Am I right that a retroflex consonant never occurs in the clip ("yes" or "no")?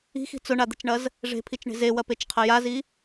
no